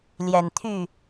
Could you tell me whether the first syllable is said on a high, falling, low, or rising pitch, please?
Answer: low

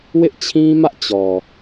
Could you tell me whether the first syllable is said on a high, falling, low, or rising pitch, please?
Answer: high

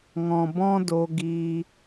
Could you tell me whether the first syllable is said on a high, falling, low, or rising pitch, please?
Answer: low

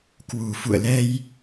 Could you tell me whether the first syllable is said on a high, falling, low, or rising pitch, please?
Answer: low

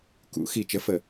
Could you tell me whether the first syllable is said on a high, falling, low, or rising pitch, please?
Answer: rising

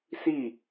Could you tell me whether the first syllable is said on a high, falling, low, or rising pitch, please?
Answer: falling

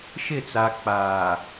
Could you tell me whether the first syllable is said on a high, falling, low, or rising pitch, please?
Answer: falling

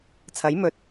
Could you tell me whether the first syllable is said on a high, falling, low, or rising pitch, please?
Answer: rising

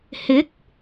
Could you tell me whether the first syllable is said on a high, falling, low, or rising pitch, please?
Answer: rising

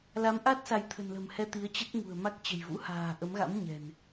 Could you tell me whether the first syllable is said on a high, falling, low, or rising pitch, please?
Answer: rising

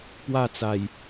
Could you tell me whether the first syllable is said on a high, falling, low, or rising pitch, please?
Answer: falling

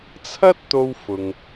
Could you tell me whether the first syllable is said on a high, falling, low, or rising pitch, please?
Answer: high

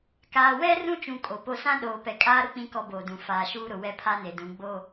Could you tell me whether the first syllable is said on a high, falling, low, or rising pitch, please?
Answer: low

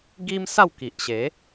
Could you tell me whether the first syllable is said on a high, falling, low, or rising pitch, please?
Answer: high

